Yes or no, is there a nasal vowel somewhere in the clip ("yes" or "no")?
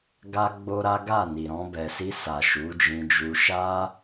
yes